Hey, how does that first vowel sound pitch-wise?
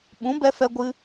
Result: rising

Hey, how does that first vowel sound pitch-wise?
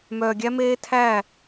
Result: low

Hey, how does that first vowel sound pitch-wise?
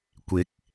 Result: rising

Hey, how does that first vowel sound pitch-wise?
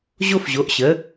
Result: high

